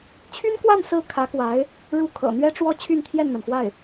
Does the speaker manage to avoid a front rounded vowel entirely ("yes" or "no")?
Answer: no